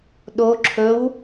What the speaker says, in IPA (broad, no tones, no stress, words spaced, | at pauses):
ɗo ǁʰɵw